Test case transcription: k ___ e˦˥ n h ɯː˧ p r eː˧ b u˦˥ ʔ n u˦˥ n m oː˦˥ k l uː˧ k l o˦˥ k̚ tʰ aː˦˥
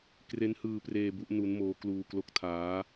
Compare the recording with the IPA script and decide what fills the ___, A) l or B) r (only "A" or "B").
B